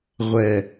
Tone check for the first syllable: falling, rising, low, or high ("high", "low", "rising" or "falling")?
low